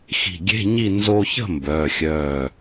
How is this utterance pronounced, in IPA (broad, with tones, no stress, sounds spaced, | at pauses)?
x i̤˧˩ ɡʲ e̤˧˥˧ ɲ i˥˨ n z o˧ ç ə̤˥˨ m b œː˩˧˩ xʲ œː˧˩